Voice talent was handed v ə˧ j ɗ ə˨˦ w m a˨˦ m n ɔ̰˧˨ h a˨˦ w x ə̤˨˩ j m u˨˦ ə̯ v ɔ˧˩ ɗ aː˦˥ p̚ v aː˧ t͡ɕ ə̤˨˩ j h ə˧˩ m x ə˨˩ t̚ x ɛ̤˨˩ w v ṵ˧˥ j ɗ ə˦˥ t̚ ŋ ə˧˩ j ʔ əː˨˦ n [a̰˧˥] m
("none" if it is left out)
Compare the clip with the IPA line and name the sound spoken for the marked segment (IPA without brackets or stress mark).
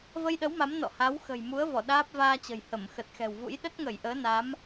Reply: a˨˦